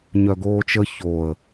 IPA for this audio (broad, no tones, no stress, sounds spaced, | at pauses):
ɲ œ ɡ oː t͡ʃ ə ç o ə̯